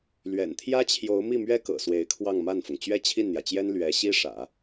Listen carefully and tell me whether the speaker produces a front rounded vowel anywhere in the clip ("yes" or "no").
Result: no